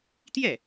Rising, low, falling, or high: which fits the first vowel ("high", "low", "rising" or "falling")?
falling